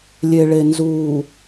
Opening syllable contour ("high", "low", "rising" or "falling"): low